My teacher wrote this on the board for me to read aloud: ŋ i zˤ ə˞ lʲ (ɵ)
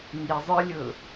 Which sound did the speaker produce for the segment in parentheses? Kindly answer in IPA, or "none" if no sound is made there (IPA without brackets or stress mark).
ɵ